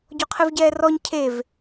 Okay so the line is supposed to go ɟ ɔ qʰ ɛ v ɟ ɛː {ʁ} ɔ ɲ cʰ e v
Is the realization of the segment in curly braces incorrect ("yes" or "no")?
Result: yes